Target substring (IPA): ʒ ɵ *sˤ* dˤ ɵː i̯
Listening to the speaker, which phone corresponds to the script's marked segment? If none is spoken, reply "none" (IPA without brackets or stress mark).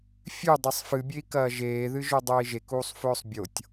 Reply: none